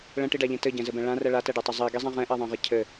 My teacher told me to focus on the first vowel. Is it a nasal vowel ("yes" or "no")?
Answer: yes